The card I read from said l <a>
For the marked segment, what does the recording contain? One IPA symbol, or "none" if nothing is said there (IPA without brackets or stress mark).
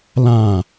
ã